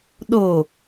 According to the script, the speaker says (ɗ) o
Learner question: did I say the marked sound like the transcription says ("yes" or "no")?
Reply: yes